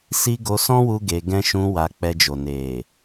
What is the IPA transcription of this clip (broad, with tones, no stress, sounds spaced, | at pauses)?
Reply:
s i˦ ɡ o˧ s ɔ̃˦ w u˧ ɡ e˧ ɡ ɛ̃˦ ʃ ũ˧ w a˧ k͡p ɛ˧ d͡ʒ o˨ n e˨